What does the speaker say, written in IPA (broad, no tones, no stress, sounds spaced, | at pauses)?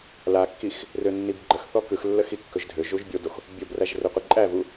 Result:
l a kː i x | r ø nː i b ɡ͡ǃ ə x θ ɔ k ɯ x lː ə x i kː ɵ ʒ dʱ ø ʒ u ʒ bʲ o d o x | bʲ o b r æ ʒ r ø qʷ i ǃʼ æ v u